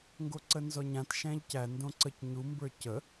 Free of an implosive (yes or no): yes